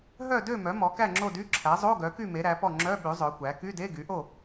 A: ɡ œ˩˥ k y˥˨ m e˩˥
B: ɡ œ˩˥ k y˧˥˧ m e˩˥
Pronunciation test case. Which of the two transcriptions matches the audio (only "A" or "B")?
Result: A